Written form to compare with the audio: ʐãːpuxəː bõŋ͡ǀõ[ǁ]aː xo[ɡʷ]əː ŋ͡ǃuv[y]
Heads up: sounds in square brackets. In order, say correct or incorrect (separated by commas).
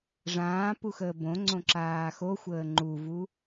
correct, incorrect, incorrect